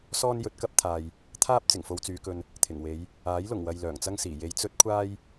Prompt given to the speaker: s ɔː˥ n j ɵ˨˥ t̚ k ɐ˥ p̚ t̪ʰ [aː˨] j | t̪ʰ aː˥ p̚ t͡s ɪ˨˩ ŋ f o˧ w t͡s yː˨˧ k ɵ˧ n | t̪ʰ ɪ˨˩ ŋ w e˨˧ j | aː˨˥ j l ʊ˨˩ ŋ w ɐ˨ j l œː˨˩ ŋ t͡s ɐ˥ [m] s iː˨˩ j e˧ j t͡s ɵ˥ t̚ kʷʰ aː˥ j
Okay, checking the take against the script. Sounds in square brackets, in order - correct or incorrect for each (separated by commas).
correct, incorrect